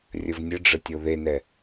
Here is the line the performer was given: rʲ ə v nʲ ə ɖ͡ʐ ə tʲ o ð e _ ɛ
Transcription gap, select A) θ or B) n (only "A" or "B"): B